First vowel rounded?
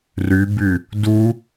yes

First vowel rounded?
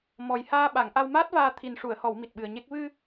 yes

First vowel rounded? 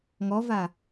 yes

